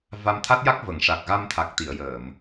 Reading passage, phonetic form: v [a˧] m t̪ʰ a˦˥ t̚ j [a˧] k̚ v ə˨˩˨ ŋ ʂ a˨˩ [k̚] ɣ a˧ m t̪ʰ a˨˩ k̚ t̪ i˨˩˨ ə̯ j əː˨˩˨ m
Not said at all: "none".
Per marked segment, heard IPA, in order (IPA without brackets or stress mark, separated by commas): a˧, a˦˥, k̚